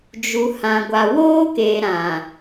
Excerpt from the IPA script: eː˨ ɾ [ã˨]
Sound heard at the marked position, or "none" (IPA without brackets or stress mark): ã˨